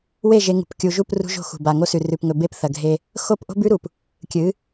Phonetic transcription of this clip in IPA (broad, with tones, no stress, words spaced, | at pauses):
we˦˨ʒe˨˦ŋṳ˨p kʲu˨ʒu˦˨p rṳ˦ʒo̤˦˨xṳ˨ba˨ ŋo˦sʉ˨ rʉ˨pŋɵ˨be˦p θɐ˨ɡʱe˦ | xo˦p ʔo̤˦bʉ˦ɾu˨p | kʲɨ˨˦